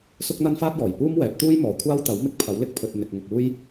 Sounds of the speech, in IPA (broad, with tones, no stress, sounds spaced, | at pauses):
s ʊ˥ k̚ n̪ ɐ˥ n f aː˥ t̚ j ɔː˨˩ j p uː˥ m w ɛː˨˥ p̚ t̪ uː˥ j m ɔː˨ kʷʰ aː˥ w t̪ ɐ˨˥ w m ɪ˧ k̚ pʰ ɐ˨˥ w l ɪ˧ k̚ pʰ ɵ˨ t̚ n̪ ɪ˨ k̚ ŋ ʊ˨ k̚ uː˥ j